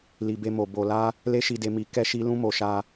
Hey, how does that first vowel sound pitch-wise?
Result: low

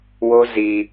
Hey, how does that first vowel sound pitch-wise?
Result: high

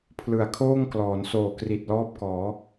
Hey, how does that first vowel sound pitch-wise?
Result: low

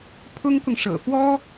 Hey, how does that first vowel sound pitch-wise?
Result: high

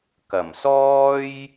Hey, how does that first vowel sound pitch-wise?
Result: low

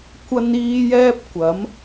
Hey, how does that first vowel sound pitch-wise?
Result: high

